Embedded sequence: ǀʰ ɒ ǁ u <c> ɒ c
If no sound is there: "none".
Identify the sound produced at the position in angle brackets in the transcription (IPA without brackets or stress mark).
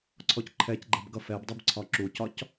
c